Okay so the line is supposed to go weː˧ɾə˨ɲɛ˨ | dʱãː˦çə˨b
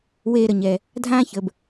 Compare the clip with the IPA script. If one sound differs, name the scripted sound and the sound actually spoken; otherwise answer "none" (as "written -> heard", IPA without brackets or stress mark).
none